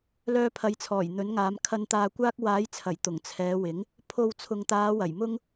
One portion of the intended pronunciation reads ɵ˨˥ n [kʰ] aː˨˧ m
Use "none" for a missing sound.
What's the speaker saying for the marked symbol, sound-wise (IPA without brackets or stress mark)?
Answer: ŋ